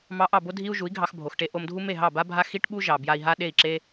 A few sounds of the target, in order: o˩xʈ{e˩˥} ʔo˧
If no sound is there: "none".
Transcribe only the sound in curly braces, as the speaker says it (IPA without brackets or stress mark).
e˧